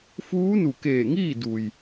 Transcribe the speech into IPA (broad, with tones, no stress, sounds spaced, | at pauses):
f uː˧˥ n u˧˩ k eː˧˩ ŋ iː˥˨ d u˩ j